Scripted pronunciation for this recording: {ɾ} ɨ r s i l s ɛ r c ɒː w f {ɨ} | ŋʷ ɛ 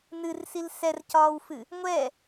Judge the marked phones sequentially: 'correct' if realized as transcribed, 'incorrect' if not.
incorrect: n, correct

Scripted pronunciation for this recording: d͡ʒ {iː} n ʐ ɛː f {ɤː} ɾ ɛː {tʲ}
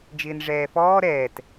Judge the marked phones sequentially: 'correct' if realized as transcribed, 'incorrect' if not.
incorrect: ɪː, incorrect: ɔː, incorrect: t

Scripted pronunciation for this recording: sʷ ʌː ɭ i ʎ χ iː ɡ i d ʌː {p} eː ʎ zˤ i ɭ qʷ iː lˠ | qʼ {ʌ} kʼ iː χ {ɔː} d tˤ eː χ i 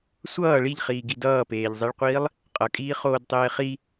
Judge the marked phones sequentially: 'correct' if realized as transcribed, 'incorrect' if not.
correct, correct, incorrect: oː

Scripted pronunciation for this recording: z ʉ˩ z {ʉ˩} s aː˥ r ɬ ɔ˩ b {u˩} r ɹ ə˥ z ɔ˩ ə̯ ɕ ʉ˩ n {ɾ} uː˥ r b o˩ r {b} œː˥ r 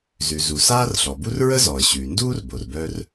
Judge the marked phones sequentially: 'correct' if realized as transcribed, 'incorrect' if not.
incorrect: u˩, incorrect: u˥, incorrect: d, correct

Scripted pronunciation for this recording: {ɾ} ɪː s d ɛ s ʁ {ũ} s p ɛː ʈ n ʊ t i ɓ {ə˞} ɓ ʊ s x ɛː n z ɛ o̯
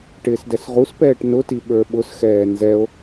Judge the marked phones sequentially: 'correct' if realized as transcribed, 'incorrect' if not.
incorrect: ʈ, incorrect: u, correct

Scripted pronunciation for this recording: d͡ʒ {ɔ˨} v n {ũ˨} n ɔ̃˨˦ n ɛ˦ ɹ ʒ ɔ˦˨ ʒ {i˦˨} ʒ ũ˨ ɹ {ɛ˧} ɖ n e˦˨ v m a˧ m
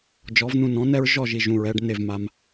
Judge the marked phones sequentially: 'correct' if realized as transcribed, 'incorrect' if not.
incorrect: ɔ˨˦, incorrect: ũ˧, incorrect: i˨, correct

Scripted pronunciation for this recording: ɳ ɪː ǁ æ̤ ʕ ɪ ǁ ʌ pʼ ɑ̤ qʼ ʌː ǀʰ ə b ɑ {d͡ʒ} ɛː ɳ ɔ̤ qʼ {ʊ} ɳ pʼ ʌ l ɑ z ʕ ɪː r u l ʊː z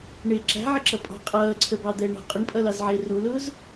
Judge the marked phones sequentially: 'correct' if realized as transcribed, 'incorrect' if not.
incorrect: d̪, correct

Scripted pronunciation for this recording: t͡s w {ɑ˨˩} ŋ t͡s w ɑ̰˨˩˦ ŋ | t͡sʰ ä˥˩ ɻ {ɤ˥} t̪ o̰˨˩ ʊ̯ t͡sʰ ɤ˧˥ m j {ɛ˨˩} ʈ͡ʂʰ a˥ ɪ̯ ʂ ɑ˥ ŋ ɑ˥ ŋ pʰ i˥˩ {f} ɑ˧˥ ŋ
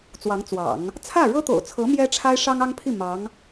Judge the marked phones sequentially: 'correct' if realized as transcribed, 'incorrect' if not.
incorrect: ɑ˧˥, correct, incorrect: ɛ˥, incorrect: m

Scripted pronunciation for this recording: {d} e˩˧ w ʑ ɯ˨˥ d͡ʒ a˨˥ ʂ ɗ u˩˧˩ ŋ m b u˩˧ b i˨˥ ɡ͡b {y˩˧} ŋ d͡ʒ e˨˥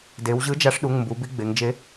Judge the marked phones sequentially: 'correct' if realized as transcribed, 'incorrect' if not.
correct, incorrect: e˩˧

